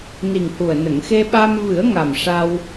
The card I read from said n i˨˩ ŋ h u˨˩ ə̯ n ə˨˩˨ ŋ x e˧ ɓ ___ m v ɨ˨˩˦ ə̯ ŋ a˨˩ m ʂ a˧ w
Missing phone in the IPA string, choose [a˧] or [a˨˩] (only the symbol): a˧